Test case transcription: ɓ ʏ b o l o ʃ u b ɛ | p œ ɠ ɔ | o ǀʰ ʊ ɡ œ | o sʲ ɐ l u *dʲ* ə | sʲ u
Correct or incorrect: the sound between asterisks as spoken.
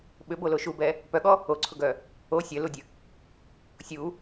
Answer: correct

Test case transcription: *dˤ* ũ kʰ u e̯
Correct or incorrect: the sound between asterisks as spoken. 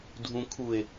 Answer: incorrect: dʱ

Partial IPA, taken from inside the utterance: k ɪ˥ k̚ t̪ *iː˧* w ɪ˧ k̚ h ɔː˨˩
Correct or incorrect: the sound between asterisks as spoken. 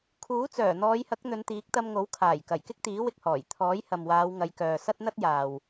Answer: incorrect: iː˨˥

